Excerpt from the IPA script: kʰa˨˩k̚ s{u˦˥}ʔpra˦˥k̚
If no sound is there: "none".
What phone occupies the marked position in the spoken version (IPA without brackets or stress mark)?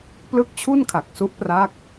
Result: u˦˥